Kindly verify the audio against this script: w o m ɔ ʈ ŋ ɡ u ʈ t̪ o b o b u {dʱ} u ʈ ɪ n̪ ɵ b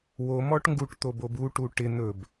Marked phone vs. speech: incorrect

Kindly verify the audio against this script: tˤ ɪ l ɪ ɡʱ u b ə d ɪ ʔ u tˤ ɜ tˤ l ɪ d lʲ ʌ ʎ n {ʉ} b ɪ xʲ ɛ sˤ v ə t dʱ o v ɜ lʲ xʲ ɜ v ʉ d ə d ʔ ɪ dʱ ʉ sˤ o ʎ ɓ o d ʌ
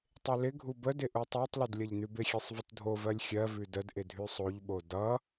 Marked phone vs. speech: correct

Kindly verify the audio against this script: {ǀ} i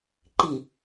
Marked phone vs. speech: incorrect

